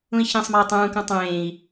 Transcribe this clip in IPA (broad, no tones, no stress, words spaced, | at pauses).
ũi̯çĩsˤmɒi̯ tˤũːkũ tˤẽːi̯